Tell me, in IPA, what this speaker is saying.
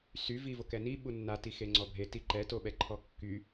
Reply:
sy vivokɛni ɓunːa tixeŋ͡ǀɔbʱe tiǃɛ toɓɛǃʰɔkːy

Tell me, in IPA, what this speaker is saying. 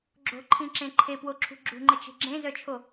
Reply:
ɡ͡ǁo̤ǃʰĩǁẽ ǃʰepwoǁʰṳ ɡ͡ǁṳŋ͡ǃət͡ʃe̤ ɡ͡ǁẽzœt͡ʃʰo

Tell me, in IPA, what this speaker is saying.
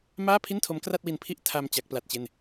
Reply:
maː˥˩pʰi˥˩ntʰo˦˥m kra˥˩t̚wi˧npʰi˥˩ʔ tʰa˧m t͡ɕa˦˥k̚pla˦˥t̚t͡ɕe˥˩n

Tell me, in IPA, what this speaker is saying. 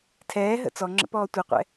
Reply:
tʰɛːɦə̰ t͡sɔŋ͡ǁə̰ pɔːtʷiqʷɛ̰

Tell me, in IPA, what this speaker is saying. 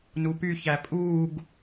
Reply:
nupy çæpʼuːɡ

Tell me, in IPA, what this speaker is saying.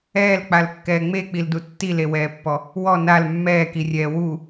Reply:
ɛːlk͡palkːɛː ŋ͡mek͡pildu tːilewɛːpːɔ | wɔ nal mːɛːkirʲɛː wu

